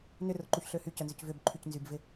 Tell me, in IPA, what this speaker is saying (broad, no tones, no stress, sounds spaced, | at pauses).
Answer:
n ʏ r ʊ ǃ u ç ɬ ø h y c œ n z ʏ c v ʏ b ǃʰ y c n z y b v ɪ